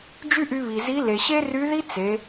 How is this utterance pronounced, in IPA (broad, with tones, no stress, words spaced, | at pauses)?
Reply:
d͡ʒy˥ʔy˧βi˩zi˧˥ le˩ɕe˥ry˧˥ði˥ t͡se˩˧